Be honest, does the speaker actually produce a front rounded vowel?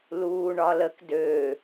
yes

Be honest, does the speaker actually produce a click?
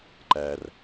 yes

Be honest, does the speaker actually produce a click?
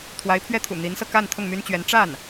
no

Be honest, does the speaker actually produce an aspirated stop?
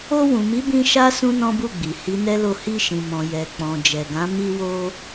no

